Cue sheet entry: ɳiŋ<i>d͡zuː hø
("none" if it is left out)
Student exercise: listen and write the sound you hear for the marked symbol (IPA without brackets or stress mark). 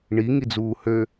i